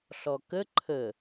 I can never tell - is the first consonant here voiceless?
yes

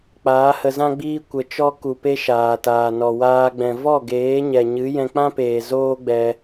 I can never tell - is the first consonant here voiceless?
yes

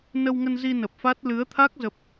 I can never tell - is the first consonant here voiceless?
no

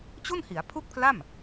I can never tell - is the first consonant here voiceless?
yes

